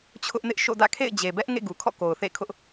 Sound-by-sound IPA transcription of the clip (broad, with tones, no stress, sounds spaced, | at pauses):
t͡ɕʰ ʊ˦ ʔ n ɪ˦ ʔ ʃ o̰˦˨ d ä̰˦˨ kʰ ḛ˦˨ ɪ̯ d͡ʑ e˨ b ɛ˦ ʔ ŋ ḛ˦˨ ɡ u˨ kʰ ɔ̰˦˨ k o˨ ʊ̯ θ ḛ˦˨ kʰ ʊ˦ ʔ